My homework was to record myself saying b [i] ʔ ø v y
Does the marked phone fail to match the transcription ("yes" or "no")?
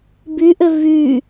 yes